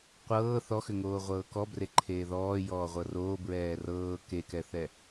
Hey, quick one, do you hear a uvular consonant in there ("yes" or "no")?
yes